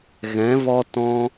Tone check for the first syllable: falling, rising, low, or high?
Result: rising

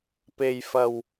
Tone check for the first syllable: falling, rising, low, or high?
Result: low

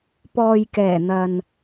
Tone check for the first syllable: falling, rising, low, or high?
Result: low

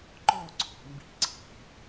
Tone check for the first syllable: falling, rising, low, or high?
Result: falling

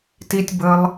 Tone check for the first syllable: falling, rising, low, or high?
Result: high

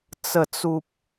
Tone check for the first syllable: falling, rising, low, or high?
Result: low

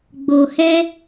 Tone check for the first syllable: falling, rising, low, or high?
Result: low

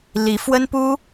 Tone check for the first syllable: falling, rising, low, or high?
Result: rising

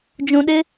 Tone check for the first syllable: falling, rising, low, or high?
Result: low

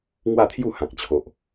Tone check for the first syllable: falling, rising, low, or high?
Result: falling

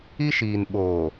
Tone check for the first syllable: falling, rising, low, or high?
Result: high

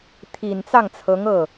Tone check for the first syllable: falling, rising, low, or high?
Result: low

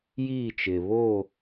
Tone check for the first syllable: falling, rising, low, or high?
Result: falling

